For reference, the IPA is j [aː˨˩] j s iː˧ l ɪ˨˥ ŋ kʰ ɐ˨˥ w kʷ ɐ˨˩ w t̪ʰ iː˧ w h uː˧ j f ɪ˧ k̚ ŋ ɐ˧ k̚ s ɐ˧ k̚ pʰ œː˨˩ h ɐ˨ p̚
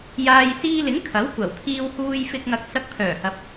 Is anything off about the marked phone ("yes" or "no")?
yes